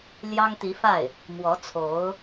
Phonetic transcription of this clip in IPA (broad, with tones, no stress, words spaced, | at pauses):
ljɑ˥ŋt̪i˧˥fa˥˩ɪ̯ | mwɔ˧˥ t͡sʰo˧˥ʊ̯